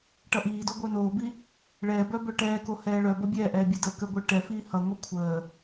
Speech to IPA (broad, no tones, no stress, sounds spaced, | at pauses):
ʈ ʌ ʔ iː d o ɡʷ œ n oː b i | ɭ ɛː b œ b œ ʈ ɛː k o h ɛː ɭ œ b ʌ bʲ ɛː ʔ ɛː bʲ ɛ d əː k ə ɡʷ ə˞ ʈ ɛ f iː h ʌ ŋʷ e kʷʰ əː